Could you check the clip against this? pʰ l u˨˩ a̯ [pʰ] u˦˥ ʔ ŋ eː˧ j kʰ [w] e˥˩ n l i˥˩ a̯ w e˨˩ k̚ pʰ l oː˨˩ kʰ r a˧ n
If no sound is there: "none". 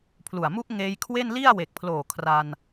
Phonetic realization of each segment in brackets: m, w

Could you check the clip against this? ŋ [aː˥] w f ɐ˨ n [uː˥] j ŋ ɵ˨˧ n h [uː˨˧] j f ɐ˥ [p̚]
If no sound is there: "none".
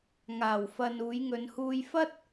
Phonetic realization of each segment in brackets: aː˨˩, uː˨˧, uː˧, t̚

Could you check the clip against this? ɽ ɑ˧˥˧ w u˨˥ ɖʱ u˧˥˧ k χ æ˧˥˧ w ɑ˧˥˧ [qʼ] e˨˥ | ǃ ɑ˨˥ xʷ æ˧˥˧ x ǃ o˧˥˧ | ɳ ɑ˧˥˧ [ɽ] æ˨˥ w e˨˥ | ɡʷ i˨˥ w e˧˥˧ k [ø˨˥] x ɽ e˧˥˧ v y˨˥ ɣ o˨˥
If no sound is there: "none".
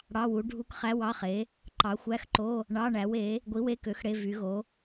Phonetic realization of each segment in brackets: χ, ɳ, ø˨˥

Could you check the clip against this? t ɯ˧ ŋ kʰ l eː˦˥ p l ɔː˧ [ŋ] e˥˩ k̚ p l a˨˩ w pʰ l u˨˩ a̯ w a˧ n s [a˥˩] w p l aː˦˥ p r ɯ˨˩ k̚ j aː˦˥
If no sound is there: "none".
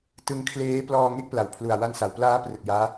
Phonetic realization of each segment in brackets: ŋ, a˩˦

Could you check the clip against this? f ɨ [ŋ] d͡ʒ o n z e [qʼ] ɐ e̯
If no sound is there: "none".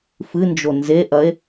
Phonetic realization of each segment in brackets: n, ʔ

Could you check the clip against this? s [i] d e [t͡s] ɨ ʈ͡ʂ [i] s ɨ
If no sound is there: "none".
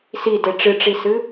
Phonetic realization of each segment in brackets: i, ʈ͡ʂ, i

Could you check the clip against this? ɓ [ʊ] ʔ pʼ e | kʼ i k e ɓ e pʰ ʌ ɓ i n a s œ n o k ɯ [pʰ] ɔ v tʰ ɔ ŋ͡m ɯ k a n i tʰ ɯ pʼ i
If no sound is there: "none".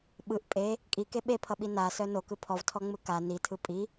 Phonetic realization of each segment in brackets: ɯ, pʰ

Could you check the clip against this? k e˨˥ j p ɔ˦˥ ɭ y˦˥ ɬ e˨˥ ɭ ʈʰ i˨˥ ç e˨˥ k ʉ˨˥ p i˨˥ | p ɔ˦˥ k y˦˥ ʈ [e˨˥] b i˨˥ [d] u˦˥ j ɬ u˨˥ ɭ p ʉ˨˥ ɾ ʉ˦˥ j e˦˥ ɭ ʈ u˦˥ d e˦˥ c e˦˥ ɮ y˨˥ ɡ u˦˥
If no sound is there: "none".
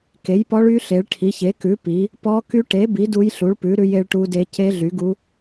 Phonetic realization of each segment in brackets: e˨˥, d

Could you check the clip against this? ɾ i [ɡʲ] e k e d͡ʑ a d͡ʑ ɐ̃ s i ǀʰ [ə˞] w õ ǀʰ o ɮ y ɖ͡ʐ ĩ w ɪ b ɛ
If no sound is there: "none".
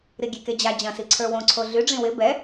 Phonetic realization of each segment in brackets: ɡʲ, ə˞

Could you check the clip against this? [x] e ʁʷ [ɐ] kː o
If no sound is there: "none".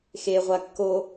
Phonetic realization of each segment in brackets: x, a

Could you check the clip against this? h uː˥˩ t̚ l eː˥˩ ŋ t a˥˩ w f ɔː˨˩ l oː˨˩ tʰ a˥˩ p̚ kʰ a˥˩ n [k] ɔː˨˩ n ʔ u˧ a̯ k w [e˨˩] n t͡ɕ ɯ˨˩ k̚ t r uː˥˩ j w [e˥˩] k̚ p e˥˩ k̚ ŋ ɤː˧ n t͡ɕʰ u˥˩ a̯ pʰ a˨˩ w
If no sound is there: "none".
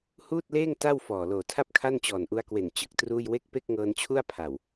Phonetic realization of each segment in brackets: t͡ɕ, e˨˩, e˥˩

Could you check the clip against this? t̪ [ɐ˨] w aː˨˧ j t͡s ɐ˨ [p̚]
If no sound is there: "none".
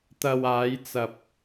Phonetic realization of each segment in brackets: ɐ˨, p̚

